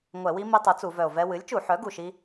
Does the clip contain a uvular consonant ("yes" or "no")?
no